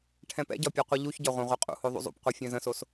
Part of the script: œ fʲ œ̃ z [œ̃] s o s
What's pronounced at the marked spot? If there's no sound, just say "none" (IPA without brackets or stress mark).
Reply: ə̃